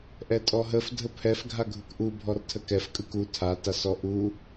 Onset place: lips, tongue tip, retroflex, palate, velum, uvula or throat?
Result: throat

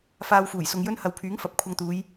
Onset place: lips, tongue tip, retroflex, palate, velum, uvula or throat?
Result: lips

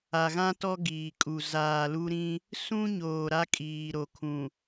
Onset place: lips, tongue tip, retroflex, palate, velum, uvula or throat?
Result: velum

